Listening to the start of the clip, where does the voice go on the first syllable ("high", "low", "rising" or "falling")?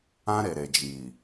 high